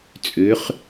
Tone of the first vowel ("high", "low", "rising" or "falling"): rising